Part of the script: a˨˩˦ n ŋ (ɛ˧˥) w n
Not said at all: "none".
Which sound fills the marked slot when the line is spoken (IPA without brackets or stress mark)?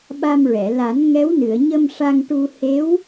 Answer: ɛ˧˥